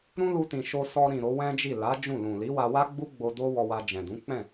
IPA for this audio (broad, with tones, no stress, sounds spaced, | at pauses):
ɾ ũ˦ l u˧ t ĩ˨ ʃ o˧ s ɔ˧ ɾ ĩ˨ ɾ o˨˦ w ɛ̃˦ d͡ʒ i˦˨ l a˨˦ d͡ʒ ũ˦˨ l ũ˨ l i˨˦ w a˧ w a˦ ɡ͡b u˦ ɡ͡b o˧ d o˦ w ɔ˧ w a˧ d͡ʒ ɛ̃˨ d ũ˨˦ k͡p ɛ̃˦˨